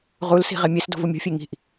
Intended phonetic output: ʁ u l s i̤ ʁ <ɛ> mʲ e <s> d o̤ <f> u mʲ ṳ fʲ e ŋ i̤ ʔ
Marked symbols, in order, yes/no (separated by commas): no, yes, no